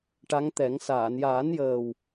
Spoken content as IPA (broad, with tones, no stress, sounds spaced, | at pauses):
ʈ a˧˥ ŋ t̪ ɛ˨˩˦ ŋ s aː˨˩˨ n j aː˨˩˦ n j əː˨˩ w